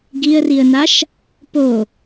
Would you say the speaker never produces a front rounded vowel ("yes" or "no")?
yes